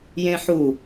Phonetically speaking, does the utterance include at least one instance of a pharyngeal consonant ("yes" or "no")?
yes